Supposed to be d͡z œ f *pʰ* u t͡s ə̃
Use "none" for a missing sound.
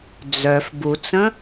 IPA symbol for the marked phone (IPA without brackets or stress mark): b